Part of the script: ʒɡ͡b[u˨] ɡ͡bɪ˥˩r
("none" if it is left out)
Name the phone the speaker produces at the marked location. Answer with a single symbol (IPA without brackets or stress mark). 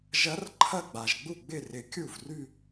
u˥˩